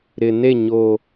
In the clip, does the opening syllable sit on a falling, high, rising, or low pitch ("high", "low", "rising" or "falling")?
low